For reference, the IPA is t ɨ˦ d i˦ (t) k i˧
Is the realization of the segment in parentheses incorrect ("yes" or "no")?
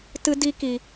yes